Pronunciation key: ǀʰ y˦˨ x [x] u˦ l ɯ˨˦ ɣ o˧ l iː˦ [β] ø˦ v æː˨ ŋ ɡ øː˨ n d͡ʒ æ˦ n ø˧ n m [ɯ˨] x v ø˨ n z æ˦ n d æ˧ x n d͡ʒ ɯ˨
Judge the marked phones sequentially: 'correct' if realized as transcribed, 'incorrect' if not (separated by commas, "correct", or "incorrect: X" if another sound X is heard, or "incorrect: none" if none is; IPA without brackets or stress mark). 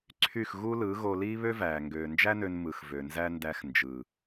incorrect: ɣ, correct, correct